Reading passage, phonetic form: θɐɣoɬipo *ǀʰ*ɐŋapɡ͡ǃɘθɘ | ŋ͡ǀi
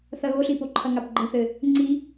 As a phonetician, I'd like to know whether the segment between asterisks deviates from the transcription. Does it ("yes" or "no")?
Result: yes